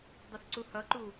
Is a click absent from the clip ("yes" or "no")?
no